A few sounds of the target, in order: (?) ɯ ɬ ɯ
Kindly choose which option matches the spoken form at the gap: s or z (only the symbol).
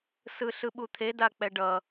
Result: s